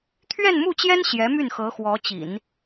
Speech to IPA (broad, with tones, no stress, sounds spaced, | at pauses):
t̪ʰ ɥ ɛ˥˧ n m u˥˩ t͡ɕ j ɛ˥ n ɕ j ɛ˧˥ m y˥˩ n x ɤ˧˥ x w ɔ˧˥ t͡ɕ ḭ˨˩˦ n